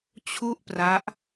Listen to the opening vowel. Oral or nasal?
oral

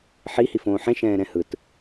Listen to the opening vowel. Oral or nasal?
oral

